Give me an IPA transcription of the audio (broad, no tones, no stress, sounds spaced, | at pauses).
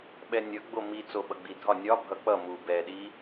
ɓ ɛ nʲ ʌ ɡ͡b o m i t͡s o ɓ ʌ ɡ͡b i dʱ ɒ nʲ ɒ bʱ ʌ k͡p ʌ m u b ɛ ɗ i